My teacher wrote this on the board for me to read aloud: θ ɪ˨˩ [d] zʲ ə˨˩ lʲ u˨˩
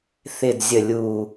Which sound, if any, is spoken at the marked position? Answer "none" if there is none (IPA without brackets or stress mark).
d